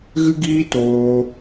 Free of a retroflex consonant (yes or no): yes